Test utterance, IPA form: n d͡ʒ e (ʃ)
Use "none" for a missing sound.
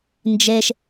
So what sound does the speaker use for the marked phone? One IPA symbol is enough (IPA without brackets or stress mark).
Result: ʃ